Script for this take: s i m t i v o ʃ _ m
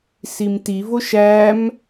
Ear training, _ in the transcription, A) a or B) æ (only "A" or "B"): B